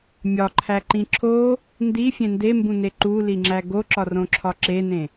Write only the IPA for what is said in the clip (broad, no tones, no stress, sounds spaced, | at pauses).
mʲ ɒ ǃʰ æ ǃ ĩ ǁʰ o | n d i fʲ ẽ n d e m b ũ n e ǃ u l i ŋ͡ǁ æ ɡ o ǁ ɒ r õ ǁʰ ɒ ǁ e n ẽ